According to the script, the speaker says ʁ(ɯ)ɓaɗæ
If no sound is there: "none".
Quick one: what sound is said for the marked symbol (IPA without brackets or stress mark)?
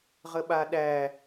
ə